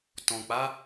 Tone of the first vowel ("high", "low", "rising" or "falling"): low